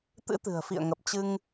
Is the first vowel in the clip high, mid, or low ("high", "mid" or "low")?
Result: high